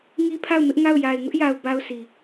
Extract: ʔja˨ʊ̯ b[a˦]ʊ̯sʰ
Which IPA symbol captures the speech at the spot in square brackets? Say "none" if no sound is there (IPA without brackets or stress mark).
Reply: a˦